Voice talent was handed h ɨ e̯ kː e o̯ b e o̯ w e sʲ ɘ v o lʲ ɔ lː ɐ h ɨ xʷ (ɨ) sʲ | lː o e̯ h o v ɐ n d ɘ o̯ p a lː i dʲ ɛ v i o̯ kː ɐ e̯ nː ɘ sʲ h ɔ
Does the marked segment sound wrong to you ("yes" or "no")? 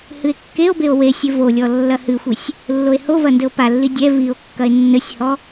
yes